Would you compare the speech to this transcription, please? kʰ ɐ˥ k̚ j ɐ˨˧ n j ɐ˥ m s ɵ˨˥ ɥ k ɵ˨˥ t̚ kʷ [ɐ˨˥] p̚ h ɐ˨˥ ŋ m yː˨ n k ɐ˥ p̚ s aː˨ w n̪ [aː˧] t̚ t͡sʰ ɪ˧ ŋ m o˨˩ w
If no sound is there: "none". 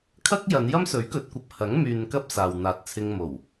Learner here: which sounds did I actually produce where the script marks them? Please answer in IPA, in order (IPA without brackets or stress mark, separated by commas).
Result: ɐ˨˥, aː˨